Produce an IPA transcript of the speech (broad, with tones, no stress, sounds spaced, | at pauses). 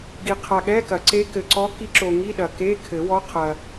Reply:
ɡ i˨ qʰ a˨ ɠ ɛ˧˥˧ k ɐ˨˩˦ ǀ e˧˥ k ɘ˨ ǀ ɔ˧˥ k i˧˥ ǁ o˨ ŋ i˧˥˧ ɗ ɐ˨ k e˧˥˧ kʰ ɘ˨˩˦ w ɔ˧˥ qʰ ɐ˨